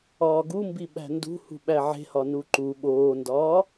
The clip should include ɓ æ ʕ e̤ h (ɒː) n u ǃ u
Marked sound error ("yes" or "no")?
yes